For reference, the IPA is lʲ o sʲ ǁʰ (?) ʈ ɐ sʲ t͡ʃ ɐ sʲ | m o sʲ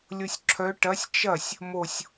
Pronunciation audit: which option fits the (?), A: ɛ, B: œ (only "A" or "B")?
B